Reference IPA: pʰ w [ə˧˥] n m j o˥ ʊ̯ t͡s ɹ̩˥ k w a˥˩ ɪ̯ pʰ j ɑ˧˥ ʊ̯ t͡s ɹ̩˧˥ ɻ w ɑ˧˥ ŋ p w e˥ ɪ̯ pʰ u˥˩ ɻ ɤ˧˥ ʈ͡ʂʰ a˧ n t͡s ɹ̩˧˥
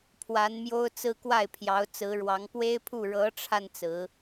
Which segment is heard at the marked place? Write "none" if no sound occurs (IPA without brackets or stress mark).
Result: a˧˥